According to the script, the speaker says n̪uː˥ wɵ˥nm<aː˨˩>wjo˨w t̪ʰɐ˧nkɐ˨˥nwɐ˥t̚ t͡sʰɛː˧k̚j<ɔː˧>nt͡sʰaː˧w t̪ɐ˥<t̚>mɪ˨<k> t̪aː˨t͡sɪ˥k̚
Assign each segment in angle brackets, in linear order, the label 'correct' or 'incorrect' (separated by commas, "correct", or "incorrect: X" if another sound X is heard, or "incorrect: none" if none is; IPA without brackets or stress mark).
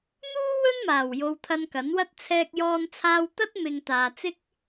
correct, correct, correct, incorrect: ŋ